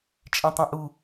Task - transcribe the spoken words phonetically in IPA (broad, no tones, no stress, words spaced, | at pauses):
t͡ʃʼẽtˤɛ̃ʔu